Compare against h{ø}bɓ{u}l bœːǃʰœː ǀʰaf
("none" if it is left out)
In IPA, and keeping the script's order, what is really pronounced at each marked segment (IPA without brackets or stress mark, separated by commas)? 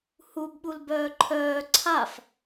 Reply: u, u